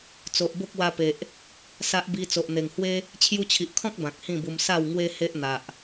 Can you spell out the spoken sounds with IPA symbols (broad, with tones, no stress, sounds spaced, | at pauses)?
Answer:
t͡s o˨ ʔ b o˦ k̚ w a˧ p e˨ ʔ | s a˦ ʔ b i˧ t͡s o˨ ʔ n̪ e˨˩ ŋ h w e˦ | t͡ɕʰ j u˧ t͡ɕʰ i˨ ʔ kʰ ɔ̃˦ k̚ b ã˨ k̚ h ĩ˥˧ b u˧ m s a˥˧ w ŋ w e˦ h e˦ ʔ n̪ a˨ ʔ